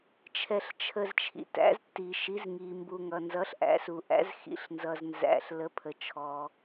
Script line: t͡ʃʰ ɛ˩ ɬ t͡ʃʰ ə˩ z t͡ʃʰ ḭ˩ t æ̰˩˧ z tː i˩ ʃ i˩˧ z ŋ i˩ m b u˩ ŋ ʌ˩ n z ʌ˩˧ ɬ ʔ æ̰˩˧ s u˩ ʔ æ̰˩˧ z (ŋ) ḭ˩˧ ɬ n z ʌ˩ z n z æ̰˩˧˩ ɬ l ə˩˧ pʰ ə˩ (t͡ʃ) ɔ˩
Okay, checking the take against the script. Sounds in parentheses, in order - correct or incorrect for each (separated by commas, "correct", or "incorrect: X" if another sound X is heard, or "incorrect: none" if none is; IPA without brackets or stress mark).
incorrect: x, incorrect: t͡ʃʰ